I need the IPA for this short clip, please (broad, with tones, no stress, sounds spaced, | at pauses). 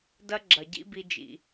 d ɐ˦ ɡ͡ǁ ɐ˨ ɟ ḭ˦ b i˧ d͡ʒ ḭ˨